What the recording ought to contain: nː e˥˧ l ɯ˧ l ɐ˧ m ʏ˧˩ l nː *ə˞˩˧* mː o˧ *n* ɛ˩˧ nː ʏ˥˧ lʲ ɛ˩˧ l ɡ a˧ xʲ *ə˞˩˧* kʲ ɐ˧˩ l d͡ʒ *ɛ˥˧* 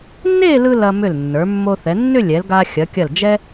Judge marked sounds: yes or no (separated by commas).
yes, no, no, no